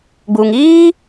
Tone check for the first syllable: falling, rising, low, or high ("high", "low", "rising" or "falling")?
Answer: low